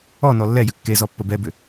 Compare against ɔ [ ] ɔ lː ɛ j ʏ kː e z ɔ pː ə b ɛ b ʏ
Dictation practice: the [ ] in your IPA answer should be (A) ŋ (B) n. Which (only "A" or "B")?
B